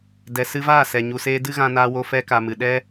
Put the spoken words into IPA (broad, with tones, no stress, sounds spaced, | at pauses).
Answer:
d ɛ˨ s ɨ˧ v aː˦˨ s ɛ˨ ɲ u˨ s eː˧ d ɨ˦ ɣ ã˧ n aː˧ w o˧ f ɛ˧ k a˨ m ɨ˨ ɗ ɛ˦